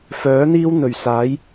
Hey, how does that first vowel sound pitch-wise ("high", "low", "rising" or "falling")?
rising